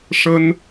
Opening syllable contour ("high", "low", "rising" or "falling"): high